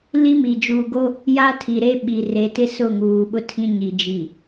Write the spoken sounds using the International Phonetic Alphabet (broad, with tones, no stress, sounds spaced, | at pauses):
l i˦ m i˨ d͡ʒ uː˨ ɡ o˦ | j a˦ tʰ i˨ ɾ e˦ ɓ i˨ r e˨˦ t ɪ˦ s ʊ˦˨ ŋ uː˨ ɓ ʊ˦ tʰ ĩ˦ ɲ i˨ d͡ʒ i˨